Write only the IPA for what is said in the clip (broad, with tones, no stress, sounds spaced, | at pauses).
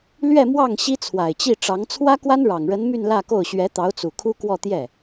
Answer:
l ɥ ɛ˥˧ m w ɑ˥˩ ŋ ɕ i˥ t͡sʰ w a˨˩ ɪ̯ t͡ɕ i˥˩ ʈ͡ʂ ɑ˧˥ ŋ t͡sʰ w ä˥ k w a˥ n ɻ ɑ˨˩ ŋ ɻ ə˧˥ n m y˥˧ n l ä˥˧ k o˥˩ ʊ̯ ɕ ɥ ɛ˧˥ t̪ ɑ˧˥ ʊ̯ t͡s u˨˩ kʰ u˥ k w ɔ˥˧ t̪ j ɛ˥˩